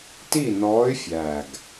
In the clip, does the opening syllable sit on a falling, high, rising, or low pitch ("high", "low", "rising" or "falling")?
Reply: falling